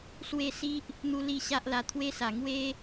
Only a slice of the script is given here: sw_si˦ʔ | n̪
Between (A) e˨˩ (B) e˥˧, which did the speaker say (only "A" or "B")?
B